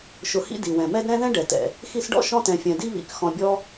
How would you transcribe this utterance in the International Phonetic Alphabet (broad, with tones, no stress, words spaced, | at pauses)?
ʃʊ˨hḭ˦ di˩wɛ̃˩mɛ˦d ɾɛ̃˥ ðɛ̃˥ɖɛ˩ tɛ̰˩ | xi˦sɖɔ̰˥ ʃɔ̃˦tɛ̃˩fʲɛ̃˩di˦ βḭ˩k xɔ̃˨bʲɔ˦